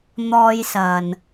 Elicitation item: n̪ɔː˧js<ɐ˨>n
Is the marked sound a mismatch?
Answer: no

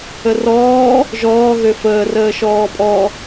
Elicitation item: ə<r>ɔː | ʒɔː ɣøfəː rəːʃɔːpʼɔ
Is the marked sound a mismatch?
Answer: no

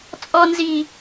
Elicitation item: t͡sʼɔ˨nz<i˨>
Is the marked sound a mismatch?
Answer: no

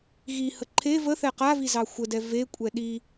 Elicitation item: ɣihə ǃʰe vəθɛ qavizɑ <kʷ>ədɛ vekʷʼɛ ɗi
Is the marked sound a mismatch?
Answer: yes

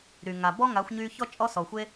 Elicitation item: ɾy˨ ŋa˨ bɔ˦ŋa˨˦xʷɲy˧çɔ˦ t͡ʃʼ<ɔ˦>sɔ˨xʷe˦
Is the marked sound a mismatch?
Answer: no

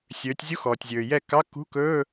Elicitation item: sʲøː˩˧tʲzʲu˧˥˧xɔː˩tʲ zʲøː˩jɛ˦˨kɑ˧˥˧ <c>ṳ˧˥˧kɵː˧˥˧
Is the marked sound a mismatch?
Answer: yes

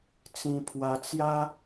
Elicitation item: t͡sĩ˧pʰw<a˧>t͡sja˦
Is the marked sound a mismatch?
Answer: no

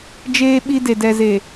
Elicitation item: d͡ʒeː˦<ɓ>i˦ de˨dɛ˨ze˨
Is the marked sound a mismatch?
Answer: no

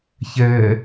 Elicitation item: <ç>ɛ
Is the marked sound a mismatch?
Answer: no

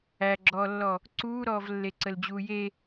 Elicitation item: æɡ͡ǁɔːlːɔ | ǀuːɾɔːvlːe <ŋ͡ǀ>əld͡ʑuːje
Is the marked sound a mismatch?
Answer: yes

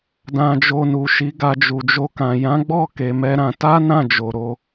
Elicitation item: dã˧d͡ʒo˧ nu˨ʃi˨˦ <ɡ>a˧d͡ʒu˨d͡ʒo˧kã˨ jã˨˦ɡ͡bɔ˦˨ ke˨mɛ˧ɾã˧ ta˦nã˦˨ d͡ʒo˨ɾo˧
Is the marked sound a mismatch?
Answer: no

